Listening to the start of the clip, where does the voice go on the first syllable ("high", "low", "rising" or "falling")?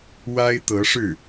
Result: high